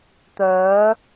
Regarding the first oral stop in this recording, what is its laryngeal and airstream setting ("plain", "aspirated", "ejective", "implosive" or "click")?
plain